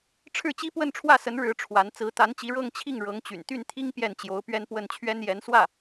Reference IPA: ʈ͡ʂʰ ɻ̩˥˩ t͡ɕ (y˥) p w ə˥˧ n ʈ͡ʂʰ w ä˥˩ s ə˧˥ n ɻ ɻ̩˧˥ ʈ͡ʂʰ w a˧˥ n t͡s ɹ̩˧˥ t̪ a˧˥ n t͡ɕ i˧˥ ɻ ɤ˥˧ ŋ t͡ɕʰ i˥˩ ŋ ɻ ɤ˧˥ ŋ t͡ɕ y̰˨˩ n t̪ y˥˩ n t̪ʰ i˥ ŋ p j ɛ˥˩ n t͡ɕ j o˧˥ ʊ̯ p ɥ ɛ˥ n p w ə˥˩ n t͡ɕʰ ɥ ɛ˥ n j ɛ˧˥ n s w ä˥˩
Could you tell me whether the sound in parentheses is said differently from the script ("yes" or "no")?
yes